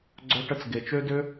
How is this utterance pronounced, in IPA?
ɡ͡ǀ œ˧ ʈ ə˧ t͡s ɡ e˨ t͡ʃ ø˦ d ø˦

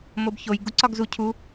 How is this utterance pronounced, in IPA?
m o b ç o j ɡ u ǀ ɒ ɡ z u cʰ u

